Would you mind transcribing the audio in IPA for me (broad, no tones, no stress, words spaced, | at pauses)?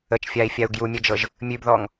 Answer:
ət͡ʃfʲai̯fʲau̯ ɡjumʲəd͡ʒɤʒ | mʲʉbðɔŋ